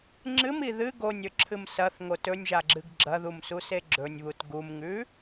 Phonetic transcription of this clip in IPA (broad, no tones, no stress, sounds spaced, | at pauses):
ŋ͡ǁ ɨ m i ð ɨ ɡ o nʲ ɵ ǁʰ ɨ m s ɐ θ ŋ o t ɵ nʲ ʒ a ɡ͡ǁ ɨ ɡ ɡ͡ǁ ɐ ð u m s u s e ɡ͡ǁ ɵ nʲ β u t ɡ u m ŋ ʉ